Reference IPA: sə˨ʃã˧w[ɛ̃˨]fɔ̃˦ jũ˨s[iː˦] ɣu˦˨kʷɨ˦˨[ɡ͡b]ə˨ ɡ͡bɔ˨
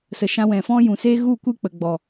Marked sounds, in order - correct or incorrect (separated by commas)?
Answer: correct, incorrect, incorrect